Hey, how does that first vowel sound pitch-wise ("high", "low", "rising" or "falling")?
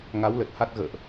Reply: rising